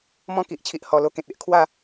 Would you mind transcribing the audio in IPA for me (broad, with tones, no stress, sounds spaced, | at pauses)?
m ɔ̃˦ k i˨ ʔ t͡ɕʰ i˨ ʔ h ɔ˨˩ l o˧ k ẽ˨ t̚ e˦ ʔ kʰ w a˥˧